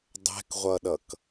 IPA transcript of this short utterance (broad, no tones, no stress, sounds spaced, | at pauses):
dˤ ɛ̤ k ʁʷ ʌ ɗ ʌ k